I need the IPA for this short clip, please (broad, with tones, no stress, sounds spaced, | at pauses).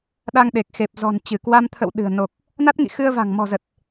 ɗ a˧ ŋ ɗ e˨˩ k̚ x e˨˩ p̚ z ɔ̤˨˩ n t͡ɕ ɨ˧˩ k w a˧ m t̪ʰ ə̰˧˨ w ɗ ɨ̤˨˩ ə̯ n o˨˩ k̚ | n a˦˥ t̚ ŋ ḭ˧˨ x ɨ˧ ə̯ v a̤˨˩ ŋ m ɔ̤˨˩ z ə˨˩ t̚